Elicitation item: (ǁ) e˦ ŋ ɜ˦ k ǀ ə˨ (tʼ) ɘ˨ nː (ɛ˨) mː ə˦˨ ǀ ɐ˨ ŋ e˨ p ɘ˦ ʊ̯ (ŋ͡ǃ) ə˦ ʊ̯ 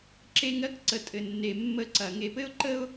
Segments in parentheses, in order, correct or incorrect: correct, correct, incorrect, incorrect

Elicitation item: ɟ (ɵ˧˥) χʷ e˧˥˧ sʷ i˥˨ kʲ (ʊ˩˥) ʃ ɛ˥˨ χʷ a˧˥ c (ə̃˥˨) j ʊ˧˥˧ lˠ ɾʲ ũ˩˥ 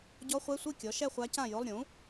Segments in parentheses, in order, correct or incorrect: incorrect, incorrect, incorrect

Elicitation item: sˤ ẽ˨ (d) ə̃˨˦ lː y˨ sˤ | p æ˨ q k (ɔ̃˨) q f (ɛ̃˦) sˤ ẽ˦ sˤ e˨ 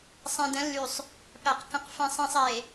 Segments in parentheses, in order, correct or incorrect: correct, incorrect, correct

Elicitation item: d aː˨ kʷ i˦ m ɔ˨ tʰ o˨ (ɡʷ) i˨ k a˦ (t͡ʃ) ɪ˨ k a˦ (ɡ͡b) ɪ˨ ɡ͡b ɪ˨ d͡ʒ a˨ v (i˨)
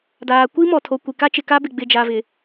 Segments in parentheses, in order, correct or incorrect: incorrect, correct, incorrect, incorrect

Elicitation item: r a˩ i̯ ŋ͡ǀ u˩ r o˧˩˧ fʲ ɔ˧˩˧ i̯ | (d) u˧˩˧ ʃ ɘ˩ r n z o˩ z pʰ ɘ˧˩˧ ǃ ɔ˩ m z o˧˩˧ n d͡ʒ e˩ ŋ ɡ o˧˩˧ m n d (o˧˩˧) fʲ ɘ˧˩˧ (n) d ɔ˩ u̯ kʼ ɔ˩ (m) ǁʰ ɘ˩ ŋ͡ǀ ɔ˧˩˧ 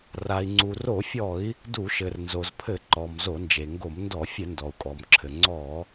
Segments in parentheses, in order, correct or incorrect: correct, incorrect, correct, correct

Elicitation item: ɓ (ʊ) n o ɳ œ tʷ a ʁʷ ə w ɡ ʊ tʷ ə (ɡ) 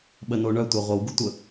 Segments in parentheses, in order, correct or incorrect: incorrect, incorrect

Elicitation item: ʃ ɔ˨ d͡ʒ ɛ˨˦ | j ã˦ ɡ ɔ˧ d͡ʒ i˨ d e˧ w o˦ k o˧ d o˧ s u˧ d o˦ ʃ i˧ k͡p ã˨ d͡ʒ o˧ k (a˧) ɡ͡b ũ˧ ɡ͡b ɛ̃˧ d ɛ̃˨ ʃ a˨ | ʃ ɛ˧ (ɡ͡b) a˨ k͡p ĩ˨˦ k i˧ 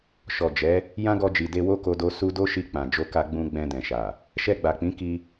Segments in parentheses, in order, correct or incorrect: correct, correct

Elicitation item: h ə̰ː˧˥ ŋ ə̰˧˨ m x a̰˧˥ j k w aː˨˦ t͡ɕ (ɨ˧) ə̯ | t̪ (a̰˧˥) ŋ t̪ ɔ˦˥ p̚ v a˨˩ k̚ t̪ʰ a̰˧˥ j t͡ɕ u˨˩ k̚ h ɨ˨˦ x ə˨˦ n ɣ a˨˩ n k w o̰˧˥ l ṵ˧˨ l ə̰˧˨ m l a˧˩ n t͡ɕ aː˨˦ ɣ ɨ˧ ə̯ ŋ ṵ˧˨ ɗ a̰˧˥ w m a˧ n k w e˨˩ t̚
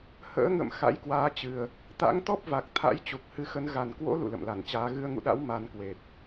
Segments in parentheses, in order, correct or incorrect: incorrect, correct

